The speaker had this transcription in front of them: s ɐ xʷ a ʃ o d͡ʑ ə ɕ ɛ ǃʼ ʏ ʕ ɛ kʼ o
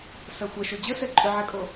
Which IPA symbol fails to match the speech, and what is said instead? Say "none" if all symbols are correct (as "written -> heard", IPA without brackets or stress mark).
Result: ɕ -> s